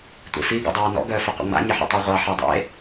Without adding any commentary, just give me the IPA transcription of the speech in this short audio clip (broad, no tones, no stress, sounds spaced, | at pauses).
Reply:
tʷ ḛ f i ɡ ɔ̰ dˤ ɑː n ɔ̰ ɡ œː f ə qʷ ə̰ ŋ͡m a̰ ɲ ɪ ħ ɔ̰ tˤ ɑ ʁʷ ɑ ħ e dˤ ḛ